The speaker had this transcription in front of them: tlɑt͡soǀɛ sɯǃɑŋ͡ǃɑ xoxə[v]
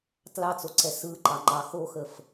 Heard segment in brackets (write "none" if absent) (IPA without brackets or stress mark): f